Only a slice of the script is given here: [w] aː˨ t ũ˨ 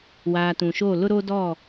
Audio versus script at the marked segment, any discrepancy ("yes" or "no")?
no